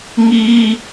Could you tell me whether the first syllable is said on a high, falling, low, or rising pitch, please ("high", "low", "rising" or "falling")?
high